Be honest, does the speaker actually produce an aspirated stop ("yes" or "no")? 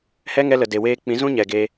no